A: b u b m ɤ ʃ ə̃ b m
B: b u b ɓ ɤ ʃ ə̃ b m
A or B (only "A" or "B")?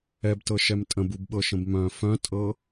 B